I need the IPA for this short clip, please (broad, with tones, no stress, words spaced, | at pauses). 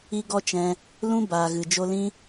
i˦ɡɔ˦t͡ʃɛ̃˧ | lũ˦ baː˨ɣɨ˨ d͡ʒo˧lĩ˦